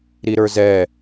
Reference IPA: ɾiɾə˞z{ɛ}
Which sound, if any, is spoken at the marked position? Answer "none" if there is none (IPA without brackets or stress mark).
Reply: ɛ